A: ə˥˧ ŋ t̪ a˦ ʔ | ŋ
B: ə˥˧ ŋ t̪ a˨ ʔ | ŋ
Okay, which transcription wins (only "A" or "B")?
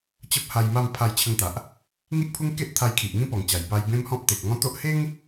B